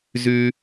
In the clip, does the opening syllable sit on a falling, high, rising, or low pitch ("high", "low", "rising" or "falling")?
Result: high